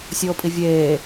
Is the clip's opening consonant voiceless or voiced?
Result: voiceless